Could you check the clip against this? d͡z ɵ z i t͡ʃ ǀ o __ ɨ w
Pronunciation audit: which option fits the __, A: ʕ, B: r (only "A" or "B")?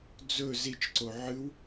A